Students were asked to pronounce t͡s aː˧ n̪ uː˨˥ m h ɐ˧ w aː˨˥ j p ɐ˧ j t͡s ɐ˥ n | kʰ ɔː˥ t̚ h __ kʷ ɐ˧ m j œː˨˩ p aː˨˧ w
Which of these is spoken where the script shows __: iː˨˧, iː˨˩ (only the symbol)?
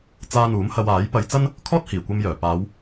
iː˨˩